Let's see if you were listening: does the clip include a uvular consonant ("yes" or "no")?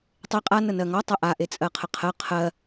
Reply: yes